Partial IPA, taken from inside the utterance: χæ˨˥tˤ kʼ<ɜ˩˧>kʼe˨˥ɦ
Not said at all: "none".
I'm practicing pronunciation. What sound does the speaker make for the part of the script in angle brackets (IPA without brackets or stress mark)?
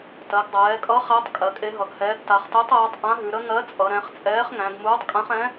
ɜ˩˧